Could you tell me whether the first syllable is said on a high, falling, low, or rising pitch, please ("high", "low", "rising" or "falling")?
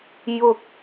low